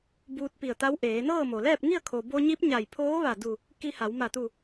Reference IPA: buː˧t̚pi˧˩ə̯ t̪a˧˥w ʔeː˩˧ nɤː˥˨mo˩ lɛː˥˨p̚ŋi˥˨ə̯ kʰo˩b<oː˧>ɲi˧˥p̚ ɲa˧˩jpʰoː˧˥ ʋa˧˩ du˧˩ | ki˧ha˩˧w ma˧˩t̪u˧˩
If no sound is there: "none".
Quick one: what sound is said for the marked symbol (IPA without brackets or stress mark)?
o˧